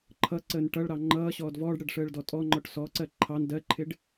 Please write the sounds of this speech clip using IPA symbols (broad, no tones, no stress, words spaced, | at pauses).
ǃʰʌǀəːn ʈʌɭɾɑ ŋ͡ǃʌː ɕɔːdvɔːɖɽɜɖ ʂəːɭdɔtʼɔŋ͡ǃɔʈ sɔǀɜ ǃʰɑn dɜǃʰɪɖ